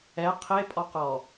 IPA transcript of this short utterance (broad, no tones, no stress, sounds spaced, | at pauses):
ɛ qʰ e pʼ ɔ q ɔ